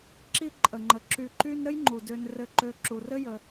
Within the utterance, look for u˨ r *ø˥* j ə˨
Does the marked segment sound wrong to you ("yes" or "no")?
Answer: yes